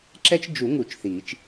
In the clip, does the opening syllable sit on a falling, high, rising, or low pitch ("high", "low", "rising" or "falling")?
high